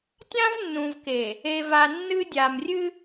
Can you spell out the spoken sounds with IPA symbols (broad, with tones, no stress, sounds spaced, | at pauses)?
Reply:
tʲ ã˦ v nː ũ˨ v k e˨ | e˨ v a˨ nː ɨ˦ dʲ a˨ m rʲ ɨ˦